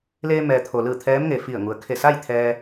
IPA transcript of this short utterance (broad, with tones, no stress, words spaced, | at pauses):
leː˧mɛː˩t̪ʰo˩lɯː˧˩ t̪ʰɛː˧˥mŋe˩fi˧˩ə̯ ŋu˩ə̯kʰe˧˩sa˥˨j t̪ʰɛː˧